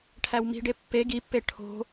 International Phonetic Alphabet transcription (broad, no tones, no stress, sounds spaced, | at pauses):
ʈʰ æ w m i̤ ɖ e pː e ɡ i pː e ʈʰ o̤